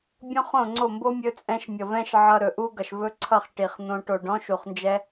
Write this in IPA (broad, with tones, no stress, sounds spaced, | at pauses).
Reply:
bʲ ɔ̃˦ χ õ˦˨ ŋ͡ǀ o˦˨ m b o˦ mʲ ɵ˧ t͡sʼ ɛ̃˧ ʃ mʲ ʌ˨ v ɛ̃˦ ʃ ʕ ʌ˧ ɾ ɵ˨ ʔ u˦ ɡ ʌ˨ ʃ v ɵ˦ ǀʰ ʌ˦˨ χ ʈ i˨ χ n̪ õ˧ ʈ o˨ ɖ ɔ̃˦ ʃ u˨ χ n d͡ʒ ɛ˦